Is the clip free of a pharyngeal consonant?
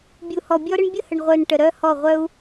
yes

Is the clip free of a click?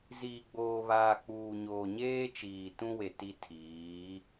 yes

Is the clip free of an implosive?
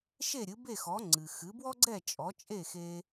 yes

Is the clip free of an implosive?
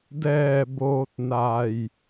yes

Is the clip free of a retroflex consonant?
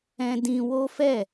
yes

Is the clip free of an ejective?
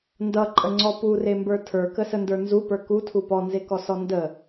no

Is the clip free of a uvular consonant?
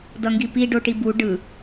yes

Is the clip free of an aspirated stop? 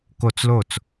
yes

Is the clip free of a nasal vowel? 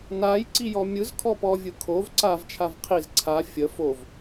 yes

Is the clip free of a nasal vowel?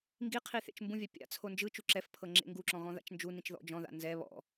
no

